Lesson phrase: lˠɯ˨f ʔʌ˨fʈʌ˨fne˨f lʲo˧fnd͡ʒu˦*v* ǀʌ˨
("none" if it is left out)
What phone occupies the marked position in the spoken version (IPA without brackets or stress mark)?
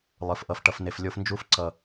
f